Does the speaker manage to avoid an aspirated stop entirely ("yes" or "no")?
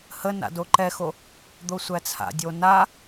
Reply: no